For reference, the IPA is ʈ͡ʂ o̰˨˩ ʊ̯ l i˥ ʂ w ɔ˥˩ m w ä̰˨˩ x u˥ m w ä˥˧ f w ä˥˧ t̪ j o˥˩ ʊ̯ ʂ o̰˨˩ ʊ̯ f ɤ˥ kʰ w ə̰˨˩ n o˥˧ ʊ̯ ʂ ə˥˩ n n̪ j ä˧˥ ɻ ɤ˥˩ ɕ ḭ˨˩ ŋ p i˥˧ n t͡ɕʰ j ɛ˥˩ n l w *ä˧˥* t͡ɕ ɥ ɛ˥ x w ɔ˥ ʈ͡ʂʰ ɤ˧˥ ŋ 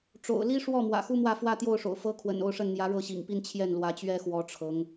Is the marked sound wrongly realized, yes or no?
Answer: no